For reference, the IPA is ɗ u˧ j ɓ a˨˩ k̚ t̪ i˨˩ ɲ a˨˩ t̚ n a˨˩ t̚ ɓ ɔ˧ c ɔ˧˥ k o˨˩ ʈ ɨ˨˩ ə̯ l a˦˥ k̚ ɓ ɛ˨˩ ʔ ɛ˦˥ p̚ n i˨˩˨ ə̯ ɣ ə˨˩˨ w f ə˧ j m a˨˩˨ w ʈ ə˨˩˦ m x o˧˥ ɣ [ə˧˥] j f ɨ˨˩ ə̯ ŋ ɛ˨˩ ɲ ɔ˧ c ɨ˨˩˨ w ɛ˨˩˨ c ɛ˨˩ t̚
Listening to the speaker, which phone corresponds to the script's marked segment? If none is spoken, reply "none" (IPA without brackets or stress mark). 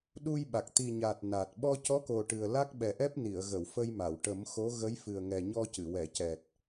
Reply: ə˧˥